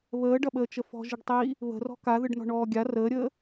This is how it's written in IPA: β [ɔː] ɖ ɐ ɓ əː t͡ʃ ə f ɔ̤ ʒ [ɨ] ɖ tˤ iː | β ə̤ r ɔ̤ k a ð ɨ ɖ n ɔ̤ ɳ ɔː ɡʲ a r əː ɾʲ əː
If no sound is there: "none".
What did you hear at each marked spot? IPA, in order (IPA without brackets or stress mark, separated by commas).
əː, ɨ